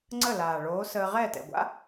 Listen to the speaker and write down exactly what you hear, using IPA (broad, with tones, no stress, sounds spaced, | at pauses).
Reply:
ŋ͡ǀ ə˥˩ l aː˨˩ ɭ oː˨˥ s əː˧ ʁ ɛː˥˩ t ɛ̰˨˩ ɡʷ a̰˥